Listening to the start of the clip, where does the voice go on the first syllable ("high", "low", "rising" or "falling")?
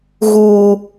high